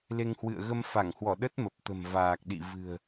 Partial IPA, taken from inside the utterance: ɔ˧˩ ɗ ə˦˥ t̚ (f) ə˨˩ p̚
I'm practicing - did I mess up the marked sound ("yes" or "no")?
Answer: yes